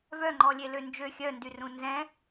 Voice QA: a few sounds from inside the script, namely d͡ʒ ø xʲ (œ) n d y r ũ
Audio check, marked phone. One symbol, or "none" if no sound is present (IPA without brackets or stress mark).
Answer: œ